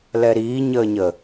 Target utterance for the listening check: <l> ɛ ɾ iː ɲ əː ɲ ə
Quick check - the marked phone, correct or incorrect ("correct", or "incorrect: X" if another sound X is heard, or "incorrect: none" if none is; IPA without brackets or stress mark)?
correct